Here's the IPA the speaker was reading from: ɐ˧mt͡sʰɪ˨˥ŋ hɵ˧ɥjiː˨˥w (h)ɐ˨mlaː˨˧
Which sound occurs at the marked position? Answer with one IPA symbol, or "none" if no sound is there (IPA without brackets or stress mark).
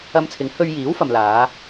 f